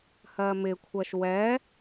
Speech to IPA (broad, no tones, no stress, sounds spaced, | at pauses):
h ɜ m ɪ kʷʰ ɜ ʃ w ɛ